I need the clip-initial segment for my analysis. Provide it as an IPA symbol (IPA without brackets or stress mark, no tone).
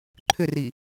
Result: ǃʰ